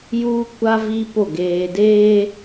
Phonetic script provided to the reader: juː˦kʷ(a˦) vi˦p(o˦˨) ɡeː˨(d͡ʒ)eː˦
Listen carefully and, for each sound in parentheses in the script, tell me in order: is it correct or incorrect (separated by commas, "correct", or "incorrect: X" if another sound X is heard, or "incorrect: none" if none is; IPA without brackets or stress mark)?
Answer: correct, correct, incorrect: d